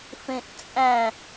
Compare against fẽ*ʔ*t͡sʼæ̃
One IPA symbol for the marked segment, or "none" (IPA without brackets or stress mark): ʔ